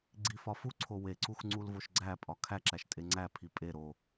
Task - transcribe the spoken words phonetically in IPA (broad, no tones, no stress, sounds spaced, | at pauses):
ɡ͡ǀ i f ɒ f u ǀʰ o w e ǀ u x ŋ͡ǀ u l v o ʃ ɡ͡ǀ æ pʼ ɒ kʰ æ ǁ æ ʃ tʼ e ŋ͡ǀ æ pʰ i pʼ e ɾ o